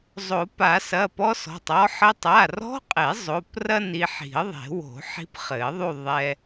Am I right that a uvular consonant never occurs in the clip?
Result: no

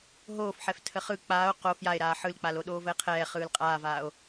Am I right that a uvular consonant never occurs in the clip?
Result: no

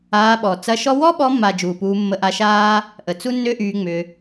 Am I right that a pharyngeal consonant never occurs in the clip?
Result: yes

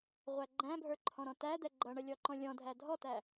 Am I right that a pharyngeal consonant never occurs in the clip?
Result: yes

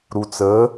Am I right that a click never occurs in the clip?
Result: yes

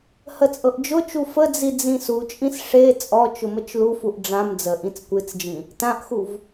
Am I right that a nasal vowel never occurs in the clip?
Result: no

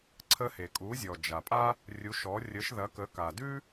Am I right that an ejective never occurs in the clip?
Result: no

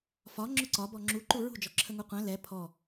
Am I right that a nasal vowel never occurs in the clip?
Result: no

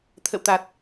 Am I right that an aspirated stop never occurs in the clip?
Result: no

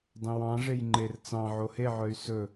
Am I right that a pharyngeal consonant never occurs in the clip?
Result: no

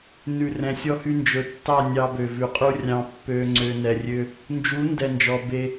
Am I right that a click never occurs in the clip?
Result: no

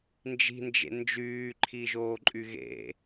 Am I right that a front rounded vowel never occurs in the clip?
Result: no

